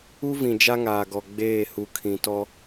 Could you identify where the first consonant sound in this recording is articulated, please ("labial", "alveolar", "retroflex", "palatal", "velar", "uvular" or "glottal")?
labial